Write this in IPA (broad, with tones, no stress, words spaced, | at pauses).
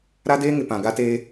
ɾa˦deː˦ŋɪ˨ pã˨ɡa˦teː˦